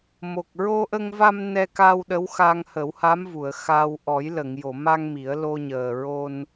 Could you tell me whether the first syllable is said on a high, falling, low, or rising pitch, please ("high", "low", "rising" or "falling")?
low